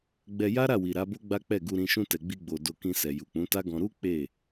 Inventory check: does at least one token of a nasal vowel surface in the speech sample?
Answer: yes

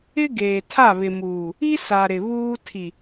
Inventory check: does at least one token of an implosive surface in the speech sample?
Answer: no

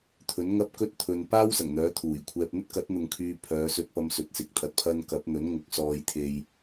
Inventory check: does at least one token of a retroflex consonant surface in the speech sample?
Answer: no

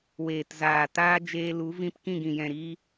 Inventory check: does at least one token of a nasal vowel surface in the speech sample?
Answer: yes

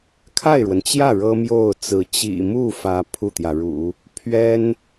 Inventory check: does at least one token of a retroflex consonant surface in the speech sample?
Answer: yes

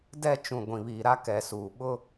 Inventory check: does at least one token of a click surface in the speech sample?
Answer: no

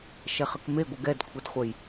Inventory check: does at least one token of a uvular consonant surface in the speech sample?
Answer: yes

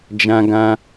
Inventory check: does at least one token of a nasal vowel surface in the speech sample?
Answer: yes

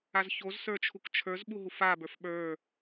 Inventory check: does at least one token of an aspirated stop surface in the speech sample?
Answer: yes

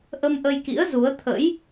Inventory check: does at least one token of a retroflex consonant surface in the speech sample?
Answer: no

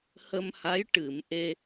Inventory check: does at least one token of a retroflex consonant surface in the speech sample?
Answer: yes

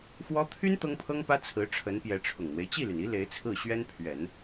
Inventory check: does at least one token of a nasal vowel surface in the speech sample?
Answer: no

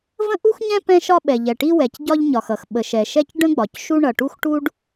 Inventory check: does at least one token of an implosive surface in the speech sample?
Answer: yes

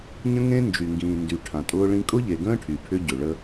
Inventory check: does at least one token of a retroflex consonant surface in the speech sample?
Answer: yes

